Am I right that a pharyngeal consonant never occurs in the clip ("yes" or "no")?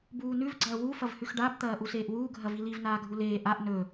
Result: yes